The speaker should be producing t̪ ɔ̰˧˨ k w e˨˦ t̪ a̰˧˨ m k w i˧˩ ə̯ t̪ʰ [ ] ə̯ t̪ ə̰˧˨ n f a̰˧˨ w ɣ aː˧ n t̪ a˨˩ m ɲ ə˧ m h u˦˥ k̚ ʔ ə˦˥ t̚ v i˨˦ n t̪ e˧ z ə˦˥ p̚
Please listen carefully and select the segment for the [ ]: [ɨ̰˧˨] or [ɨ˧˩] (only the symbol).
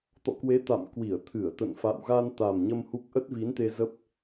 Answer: ɨ˧˩